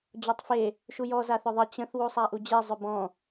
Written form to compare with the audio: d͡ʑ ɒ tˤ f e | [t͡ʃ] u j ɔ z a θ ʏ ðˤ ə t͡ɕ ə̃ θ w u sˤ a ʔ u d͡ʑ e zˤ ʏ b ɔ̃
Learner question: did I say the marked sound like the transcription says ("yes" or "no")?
no